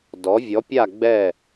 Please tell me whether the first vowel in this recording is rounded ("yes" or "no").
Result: yes